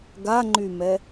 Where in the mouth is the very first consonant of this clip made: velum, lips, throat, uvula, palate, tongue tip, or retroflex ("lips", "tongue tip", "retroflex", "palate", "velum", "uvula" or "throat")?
velum